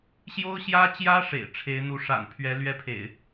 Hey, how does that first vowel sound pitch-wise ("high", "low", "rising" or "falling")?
high